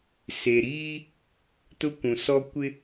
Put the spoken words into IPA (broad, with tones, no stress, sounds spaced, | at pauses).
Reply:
s e˨ ɾ iː˦ | t ʊ˦ kʷ ũ˨ s ɔ˦ kʷ ɪ˦